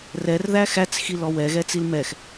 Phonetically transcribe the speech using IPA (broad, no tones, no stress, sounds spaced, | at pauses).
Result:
r ɛ r ð æ x æ t͡s x i l ɔ w ɛ ɣ ɛ t͡s i l m ɛ x